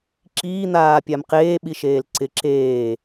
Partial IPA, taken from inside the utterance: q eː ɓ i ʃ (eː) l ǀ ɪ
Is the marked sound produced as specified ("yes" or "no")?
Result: yes